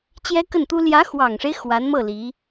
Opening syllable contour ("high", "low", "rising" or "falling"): high